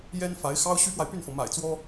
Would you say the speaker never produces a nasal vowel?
yes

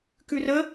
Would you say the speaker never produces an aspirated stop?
yes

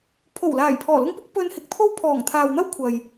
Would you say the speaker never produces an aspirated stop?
no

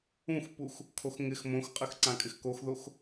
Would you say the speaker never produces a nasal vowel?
no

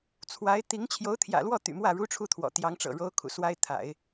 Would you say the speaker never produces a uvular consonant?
yes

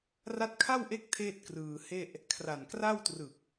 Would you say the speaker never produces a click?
yes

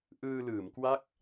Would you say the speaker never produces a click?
yes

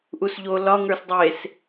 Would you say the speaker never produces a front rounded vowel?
yes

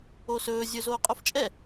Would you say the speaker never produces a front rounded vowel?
yes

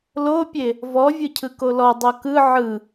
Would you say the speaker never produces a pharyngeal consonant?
no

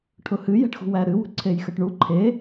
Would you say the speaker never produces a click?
no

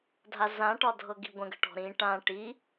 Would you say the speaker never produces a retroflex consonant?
no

